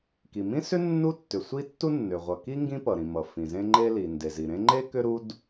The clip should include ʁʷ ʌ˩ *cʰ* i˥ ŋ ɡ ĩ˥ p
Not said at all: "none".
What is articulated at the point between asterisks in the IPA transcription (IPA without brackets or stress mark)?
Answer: k